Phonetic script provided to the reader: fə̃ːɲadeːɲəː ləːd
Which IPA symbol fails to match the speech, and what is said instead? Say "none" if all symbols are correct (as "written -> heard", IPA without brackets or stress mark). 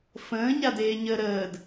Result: l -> ɾ